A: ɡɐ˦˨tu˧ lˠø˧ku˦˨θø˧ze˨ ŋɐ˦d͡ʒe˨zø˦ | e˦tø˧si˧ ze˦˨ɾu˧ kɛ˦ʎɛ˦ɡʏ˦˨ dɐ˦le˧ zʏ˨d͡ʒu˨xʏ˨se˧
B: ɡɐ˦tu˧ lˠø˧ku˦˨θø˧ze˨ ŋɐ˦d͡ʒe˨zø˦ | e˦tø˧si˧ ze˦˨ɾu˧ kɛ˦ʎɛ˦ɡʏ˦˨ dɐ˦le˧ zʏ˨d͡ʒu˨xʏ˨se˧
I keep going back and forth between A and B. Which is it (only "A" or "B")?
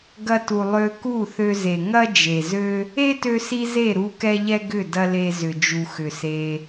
B